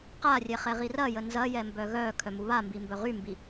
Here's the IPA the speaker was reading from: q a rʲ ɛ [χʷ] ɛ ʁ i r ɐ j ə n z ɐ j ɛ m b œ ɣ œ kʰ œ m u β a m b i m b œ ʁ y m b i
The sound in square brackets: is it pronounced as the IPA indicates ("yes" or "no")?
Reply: no